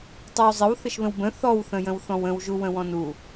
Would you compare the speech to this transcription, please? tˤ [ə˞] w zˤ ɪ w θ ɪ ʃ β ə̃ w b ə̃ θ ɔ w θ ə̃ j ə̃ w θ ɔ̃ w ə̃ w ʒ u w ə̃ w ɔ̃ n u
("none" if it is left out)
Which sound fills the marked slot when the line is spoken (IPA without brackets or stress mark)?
ə˞